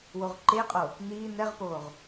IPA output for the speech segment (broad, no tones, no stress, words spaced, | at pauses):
woʁǃeqʼo | niː n̪ɛʁpoːʁ